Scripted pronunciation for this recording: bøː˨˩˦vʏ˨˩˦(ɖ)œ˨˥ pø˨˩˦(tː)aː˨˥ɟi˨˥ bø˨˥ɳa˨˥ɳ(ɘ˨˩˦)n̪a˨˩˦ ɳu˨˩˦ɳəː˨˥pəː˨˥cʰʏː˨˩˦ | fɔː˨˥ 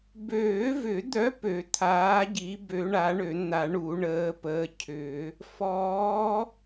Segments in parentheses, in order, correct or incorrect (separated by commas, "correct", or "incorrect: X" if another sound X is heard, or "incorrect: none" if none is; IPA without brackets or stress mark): incorrect: d̪, incorrect: t̪ʰ, incorrect: ø˨˩˦